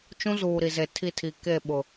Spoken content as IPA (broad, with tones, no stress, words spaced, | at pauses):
t͡ʃũ˦zuː˨ ɾi˨ze˨tʰi˦˨tʰi˨ ke˦˨ ɓʊ˨